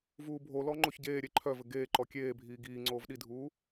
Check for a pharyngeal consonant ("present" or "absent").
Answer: absent